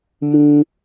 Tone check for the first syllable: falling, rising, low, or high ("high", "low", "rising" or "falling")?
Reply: high